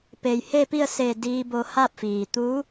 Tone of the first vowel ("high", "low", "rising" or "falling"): low